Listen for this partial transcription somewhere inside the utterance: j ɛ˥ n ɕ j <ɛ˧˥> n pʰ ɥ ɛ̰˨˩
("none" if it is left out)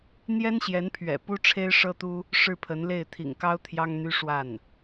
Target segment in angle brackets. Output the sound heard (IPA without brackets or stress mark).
ɛ˧˥